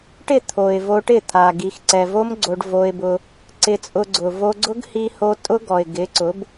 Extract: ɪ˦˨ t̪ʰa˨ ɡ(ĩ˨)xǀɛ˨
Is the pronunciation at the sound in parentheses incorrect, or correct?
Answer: incorrect: i˨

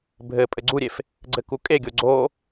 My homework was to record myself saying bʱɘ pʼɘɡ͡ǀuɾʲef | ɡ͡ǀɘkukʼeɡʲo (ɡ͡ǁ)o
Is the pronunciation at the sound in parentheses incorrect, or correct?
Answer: incorrect: ɡ͡ǀ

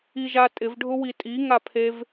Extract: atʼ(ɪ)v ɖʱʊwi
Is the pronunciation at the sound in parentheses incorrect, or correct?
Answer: correct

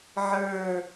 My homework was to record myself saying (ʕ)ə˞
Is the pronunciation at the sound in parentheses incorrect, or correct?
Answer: correct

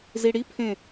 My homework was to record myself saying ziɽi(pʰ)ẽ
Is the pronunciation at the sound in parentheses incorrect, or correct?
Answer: correct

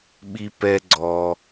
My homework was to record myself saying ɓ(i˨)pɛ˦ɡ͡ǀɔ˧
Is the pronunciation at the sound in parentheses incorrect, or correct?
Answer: incorrect: i˦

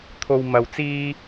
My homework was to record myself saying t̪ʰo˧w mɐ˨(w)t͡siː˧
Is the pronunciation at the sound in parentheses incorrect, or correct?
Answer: correct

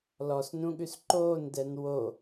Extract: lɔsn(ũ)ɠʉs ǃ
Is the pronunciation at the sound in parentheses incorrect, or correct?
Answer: correct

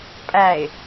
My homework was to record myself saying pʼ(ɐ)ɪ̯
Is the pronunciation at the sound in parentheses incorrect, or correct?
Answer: incorrect: æ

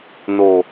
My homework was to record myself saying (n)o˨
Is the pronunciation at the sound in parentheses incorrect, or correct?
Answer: correct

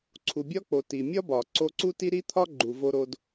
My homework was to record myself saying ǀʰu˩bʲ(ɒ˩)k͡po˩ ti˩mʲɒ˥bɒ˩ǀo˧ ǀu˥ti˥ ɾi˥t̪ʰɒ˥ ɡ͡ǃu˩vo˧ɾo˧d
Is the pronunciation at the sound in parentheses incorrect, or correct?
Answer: incorrect: ɒ˥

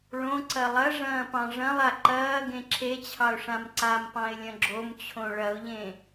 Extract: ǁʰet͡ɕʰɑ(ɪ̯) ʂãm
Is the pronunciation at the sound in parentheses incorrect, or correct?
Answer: incorrect: ʊ̯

